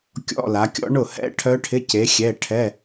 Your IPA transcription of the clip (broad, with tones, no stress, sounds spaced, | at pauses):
kʲ ɔ̰˧˥˧ l a˨˦ kʲ ɔ̰˦˥ ɳ ʊ˥˩ h ɛ̰˦˥ ʈʰ œ˦˥ ʈʰ ɪ˧˥˧ c e˨˦ xʲ ɛ˧˥˧ ʈʰ ɛ˧˥˧